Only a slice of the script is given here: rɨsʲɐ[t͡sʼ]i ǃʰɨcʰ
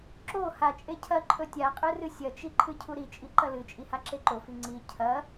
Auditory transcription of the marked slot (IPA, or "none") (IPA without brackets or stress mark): t͡ʃ